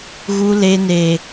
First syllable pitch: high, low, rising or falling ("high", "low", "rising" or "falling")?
high